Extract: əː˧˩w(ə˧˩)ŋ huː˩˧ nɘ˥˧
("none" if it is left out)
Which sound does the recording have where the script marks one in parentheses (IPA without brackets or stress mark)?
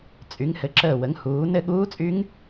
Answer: ə˩˧